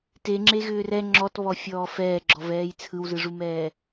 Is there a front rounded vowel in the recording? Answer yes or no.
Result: yes